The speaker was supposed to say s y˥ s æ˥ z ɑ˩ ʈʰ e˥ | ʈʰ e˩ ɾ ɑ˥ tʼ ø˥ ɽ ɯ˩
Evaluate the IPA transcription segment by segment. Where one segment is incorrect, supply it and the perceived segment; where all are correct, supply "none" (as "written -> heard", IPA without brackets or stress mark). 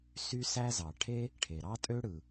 none